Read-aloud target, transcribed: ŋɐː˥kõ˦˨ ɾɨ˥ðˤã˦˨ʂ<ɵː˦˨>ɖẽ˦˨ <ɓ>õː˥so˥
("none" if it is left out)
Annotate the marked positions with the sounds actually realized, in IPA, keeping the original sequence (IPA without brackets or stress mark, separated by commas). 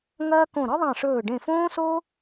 ɵː˦˨, f